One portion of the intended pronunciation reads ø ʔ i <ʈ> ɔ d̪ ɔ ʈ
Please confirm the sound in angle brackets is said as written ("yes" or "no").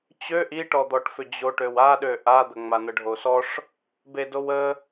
yes